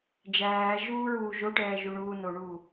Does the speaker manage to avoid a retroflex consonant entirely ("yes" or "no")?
no